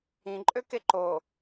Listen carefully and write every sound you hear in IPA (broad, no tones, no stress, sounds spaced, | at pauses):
ĩ ǃʼ ø k e ǃ o